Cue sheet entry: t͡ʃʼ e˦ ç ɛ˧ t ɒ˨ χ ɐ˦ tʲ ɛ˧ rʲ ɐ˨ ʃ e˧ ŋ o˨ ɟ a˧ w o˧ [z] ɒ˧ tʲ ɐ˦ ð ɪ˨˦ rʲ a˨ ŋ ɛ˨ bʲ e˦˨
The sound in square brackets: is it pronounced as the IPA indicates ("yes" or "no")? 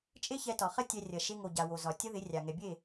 yes